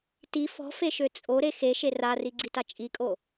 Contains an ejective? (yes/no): yes